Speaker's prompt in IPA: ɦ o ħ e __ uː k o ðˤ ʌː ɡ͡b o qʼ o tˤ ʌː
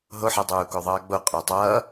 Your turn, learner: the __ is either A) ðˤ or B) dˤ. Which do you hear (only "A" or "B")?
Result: B